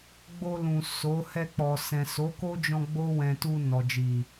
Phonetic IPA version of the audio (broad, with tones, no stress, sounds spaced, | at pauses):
ɡ͡b o˧ l ũ˨ s o˨˦ h ɛ˧ k͡p ɔ˨ s ɛ̃˨ s o˨˦ k o˦ d͡ʒ ɔ̃˧ ɡ͡b o˦ w ɛ̃˧ t u˧ n ɔ˨ d͡ʒ i˨